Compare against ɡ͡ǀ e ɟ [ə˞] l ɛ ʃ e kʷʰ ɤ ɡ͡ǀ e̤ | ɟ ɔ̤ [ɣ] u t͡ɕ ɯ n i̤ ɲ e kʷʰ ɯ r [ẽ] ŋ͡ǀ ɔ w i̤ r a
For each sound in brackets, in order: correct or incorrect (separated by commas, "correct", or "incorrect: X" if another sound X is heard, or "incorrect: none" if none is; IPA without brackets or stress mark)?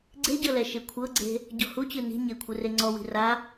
incorrect: ɤ, incorrect: h, incorrect: e